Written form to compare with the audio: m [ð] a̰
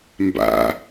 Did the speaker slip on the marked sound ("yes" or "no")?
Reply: yes